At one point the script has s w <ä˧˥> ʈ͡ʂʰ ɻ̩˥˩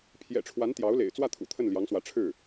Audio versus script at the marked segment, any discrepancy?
no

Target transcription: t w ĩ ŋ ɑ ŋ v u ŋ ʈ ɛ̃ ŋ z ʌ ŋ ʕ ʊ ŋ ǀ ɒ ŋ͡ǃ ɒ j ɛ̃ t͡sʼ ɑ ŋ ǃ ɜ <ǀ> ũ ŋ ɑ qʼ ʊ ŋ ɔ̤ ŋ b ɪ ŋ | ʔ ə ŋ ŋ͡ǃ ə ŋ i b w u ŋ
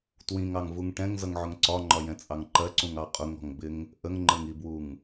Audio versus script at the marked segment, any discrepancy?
no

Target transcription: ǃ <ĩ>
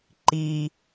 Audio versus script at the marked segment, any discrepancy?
yes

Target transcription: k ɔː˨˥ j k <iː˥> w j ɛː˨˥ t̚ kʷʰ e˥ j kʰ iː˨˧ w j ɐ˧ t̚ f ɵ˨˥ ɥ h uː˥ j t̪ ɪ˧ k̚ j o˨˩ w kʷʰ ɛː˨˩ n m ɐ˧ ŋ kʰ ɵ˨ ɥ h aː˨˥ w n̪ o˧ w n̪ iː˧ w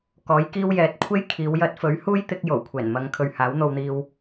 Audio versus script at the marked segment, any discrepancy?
no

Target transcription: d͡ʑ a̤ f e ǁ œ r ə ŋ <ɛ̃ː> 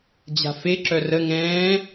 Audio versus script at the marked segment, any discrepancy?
no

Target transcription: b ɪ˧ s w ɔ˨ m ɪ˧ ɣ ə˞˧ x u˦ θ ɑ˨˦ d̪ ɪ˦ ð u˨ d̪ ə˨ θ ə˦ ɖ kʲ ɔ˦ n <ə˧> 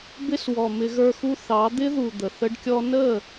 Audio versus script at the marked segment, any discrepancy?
yes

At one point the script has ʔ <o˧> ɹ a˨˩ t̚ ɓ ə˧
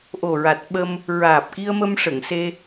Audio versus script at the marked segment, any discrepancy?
yes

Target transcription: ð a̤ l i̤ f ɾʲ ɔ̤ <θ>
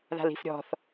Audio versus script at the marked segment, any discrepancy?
no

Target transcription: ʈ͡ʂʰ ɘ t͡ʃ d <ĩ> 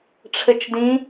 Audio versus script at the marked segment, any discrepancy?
no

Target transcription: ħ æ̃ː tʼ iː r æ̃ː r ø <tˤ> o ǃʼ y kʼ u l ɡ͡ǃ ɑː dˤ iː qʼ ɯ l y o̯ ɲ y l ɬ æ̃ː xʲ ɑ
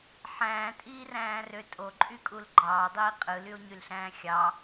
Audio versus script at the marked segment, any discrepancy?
yes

